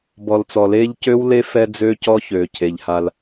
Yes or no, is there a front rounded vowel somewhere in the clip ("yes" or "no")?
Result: yes